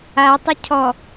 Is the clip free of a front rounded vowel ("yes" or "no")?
no